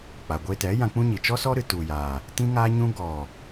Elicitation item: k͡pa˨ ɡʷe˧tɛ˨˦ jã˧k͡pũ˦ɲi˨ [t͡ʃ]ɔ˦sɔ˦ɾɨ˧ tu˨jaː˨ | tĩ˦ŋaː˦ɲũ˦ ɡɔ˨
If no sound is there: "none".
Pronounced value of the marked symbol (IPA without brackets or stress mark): t͡ʃ